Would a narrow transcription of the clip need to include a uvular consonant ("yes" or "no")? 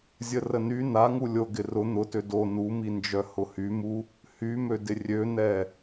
no